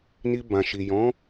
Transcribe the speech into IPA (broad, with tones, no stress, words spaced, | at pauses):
ni˧bã˨ʃi˨ jɔ̃˨˦